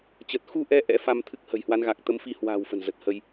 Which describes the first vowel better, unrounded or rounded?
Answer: unrounded